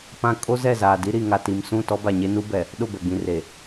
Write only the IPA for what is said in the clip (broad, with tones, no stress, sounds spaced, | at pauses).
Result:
p ã˦ kʼ o˦ z ɛ˦˨ z aː˨ d i˦ ɾ i˨ ŋ a˨ t i˨ m s ũ˦˨ t ɔ˦ b a˨ ɲ e˦ n u˦ b ɛ˨ | ɗ ʊ˦˨ b ɛ˨ ɡ͡b ĩ˨ r e˨